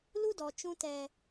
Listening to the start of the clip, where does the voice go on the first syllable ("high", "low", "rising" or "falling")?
high